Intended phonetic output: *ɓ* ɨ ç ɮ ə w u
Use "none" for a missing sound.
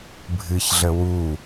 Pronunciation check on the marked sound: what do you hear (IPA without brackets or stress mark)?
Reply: bʱ